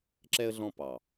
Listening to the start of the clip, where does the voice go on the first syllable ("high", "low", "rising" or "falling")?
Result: high